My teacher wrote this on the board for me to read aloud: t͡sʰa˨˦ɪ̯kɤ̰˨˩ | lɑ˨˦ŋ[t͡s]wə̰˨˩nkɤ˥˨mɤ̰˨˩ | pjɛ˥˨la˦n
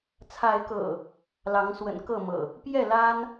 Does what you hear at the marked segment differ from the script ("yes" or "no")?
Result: yes